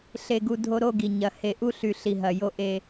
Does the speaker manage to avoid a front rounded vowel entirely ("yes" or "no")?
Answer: no